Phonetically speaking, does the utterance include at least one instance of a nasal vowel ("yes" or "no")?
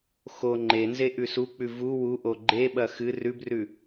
no